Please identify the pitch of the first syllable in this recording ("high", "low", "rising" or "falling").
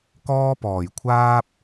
high